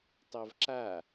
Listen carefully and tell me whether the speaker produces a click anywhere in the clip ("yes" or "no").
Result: yes